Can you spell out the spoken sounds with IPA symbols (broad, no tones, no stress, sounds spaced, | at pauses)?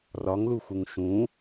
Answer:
r ɒ ŋ l u x u ŋ ʃ ũ